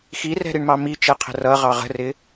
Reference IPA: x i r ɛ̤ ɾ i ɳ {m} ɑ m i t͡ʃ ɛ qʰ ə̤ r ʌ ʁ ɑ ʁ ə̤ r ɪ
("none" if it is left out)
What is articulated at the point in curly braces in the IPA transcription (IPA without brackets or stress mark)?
m